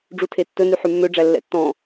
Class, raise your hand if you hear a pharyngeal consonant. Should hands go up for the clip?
yes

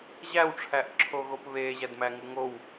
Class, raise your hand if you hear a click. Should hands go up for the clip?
yes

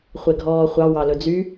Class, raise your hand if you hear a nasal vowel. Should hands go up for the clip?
no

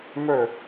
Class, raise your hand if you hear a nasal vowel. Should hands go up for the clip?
no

